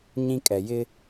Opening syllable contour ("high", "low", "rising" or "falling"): high